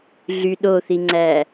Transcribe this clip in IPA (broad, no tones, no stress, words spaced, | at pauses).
ɮy ɗoθiŋ͡ǀæː